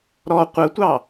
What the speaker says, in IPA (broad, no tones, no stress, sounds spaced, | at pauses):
ɾ ɔ qʷ ə tʷ ɑ